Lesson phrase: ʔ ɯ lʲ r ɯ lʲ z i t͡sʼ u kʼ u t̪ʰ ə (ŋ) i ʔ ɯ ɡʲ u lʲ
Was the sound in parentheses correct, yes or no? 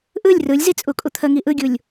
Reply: yes